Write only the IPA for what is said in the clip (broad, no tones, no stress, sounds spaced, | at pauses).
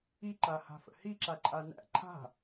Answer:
i ǃ a h a̤ f ə̰ h i ǁ a ǃʼ a n æ̰ ǃʰ a̤